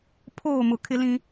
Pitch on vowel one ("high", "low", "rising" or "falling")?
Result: falling